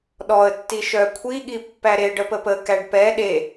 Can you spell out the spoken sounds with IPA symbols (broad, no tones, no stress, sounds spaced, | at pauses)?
ɗ ɔ ə̯ tː i ʃ œ kʷʰ i ɠ i pː æ ɾ e ɖ ə p ə p ə k æ ɖ p ɛ ɗ e